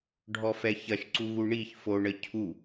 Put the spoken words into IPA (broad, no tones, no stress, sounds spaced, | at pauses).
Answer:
ɖʱ ɔ f ɛ ç ɐ ʃ ǀ u ɣ u ɳ i ç f o ɳ ə cʰ u